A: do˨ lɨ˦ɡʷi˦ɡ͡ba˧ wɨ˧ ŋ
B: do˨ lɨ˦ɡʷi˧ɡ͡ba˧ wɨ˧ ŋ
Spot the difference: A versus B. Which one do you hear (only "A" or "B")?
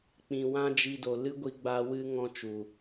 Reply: B